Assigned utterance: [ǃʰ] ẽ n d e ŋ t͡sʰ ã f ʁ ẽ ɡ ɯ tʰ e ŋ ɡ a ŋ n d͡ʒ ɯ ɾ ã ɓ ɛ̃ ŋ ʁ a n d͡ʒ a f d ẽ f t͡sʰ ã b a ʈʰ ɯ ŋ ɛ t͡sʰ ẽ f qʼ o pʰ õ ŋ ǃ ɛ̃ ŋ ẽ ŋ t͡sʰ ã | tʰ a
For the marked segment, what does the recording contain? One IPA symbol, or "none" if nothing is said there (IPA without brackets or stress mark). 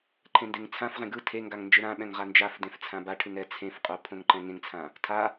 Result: ǃʰ